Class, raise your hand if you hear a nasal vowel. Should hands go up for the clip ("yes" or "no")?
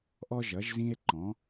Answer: yes